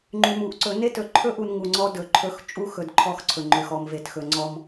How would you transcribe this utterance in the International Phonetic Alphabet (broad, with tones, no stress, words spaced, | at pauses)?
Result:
ŋ͡ǃy˨mu˨ʔǀɵ˨˦ ne˦tɵ˨ǃʰɵ˦ʔu˨n ŋu˨ŋ͡ǀɔ˦dɵ˨ǃʰɵ˦x t͡ʃʼu˦xɵ˨d ǃʰɔ˦xǀʰɵ˨ŋ͡ǃø˨x ɔ˨mve˨txɵ˨ ŋ͡ǀɔ˦m